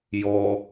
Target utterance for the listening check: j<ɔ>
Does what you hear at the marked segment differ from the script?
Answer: no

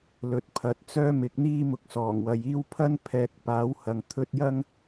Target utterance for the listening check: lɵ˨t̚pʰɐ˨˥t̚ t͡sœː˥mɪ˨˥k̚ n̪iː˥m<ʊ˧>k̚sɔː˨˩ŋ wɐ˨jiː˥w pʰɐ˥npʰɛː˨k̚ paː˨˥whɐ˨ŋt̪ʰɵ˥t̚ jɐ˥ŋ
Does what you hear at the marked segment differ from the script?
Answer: no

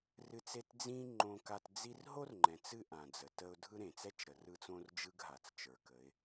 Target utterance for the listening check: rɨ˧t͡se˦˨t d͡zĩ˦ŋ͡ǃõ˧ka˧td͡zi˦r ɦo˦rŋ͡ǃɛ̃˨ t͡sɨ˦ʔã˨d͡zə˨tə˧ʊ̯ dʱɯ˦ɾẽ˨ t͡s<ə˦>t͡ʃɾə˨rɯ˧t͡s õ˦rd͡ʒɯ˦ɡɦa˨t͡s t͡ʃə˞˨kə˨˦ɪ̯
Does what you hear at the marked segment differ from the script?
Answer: yes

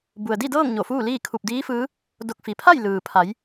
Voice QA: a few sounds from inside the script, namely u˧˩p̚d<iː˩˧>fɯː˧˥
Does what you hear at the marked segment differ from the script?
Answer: yes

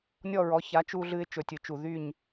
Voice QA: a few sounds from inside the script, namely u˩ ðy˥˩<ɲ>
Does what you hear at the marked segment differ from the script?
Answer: no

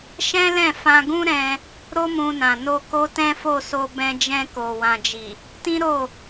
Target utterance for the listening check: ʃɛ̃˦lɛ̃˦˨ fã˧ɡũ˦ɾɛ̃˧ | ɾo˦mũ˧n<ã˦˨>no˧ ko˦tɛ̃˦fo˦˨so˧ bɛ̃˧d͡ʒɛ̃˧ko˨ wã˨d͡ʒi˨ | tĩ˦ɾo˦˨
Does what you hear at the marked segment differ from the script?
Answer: yes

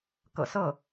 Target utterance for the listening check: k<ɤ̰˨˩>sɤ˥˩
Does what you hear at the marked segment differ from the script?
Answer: no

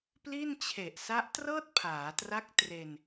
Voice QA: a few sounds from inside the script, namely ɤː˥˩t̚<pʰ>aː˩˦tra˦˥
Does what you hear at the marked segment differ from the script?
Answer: no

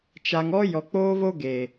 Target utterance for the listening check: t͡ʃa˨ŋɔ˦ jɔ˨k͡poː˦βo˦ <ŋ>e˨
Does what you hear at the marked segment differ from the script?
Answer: yes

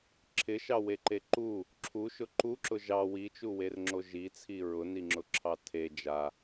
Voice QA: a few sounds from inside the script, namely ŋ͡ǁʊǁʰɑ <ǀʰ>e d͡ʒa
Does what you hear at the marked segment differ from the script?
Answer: yes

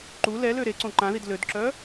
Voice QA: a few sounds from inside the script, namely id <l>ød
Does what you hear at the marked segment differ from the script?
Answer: no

